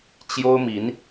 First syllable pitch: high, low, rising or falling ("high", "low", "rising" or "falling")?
high